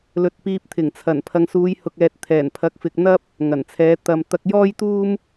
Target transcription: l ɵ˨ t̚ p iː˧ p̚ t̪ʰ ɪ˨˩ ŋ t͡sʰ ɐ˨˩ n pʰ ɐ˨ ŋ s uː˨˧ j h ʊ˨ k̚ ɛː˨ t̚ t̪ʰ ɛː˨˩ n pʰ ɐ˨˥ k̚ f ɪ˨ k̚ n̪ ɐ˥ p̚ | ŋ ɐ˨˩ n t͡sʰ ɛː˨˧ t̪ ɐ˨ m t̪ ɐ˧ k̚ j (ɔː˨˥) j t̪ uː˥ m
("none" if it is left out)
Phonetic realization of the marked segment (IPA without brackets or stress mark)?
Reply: ɔː˥